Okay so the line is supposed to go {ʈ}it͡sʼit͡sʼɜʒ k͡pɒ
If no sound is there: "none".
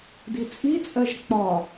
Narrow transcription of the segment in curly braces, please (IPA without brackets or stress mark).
d